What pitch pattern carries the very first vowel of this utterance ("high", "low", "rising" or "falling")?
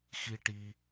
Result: high